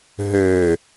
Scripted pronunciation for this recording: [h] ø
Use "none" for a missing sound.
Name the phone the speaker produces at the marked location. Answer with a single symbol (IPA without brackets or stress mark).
ɦ